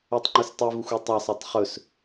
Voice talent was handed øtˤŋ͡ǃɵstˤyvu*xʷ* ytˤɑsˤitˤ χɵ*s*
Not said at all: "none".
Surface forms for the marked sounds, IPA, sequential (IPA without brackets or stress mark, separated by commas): xʷ, s